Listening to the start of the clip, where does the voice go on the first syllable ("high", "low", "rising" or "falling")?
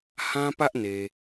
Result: high